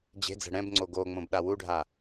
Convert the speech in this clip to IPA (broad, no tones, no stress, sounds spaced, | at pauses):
d͡ʑ e̤ d͡z ɛ̤ ɽ ɛ̃ b ŋ͡ǀ o ɡ o ŋ͡m õ b ɗ a w u ɖʱ a